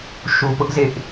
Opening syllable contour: low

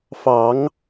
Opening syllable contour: rising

